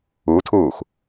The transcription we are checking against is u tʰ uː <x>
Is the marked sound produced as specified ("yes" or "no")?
yes